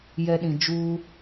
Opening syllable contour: low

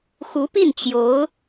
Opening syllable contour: rising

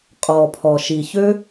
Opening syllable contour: low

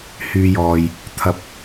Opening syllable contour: low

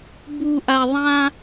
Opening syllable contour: low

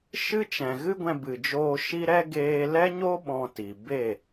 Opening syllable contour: high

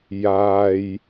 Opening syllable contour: low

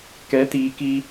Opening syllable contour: rising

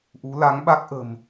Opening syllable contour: rising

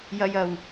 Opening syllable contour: low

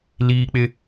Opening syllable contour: high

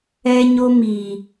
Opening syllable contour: high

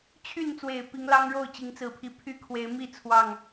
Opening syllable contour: falling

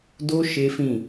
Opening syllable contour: high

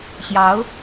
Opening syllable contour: rising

